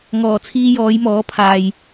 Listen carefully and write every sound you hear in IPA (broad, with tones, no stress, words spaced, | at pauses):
ŋɔː˨˩ t͡sʰiː˧jɔː˨˧jmɔː˨˥pʰaː˨j